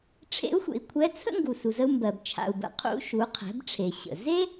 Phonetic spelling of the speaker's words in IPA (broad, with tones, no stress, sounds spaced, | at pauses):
ʈ͡ʂʰ ḛ˧˥ u̯ xʷ ḛ˩ i̯ kʷʰ ɛ˧˥ t͡sʰ ə̰˥ ŋ ɡ u˩ s u˩ z ə˧ u̯ m b ɜ˩ b t͡ʃʰ a̰˩ u̯ b ə̰˩ qʰ ṵ˧ ʃ u˩˧ qʰ ɛ̤˩˧ b ʈ͡ʂʰ e˩ ɕ ə̰˩ z e˥